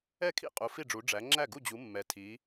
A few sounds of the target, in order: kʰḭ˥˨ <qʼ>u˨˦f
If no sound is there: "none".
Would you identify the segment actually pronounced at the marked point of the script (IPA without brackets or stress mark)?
qʼ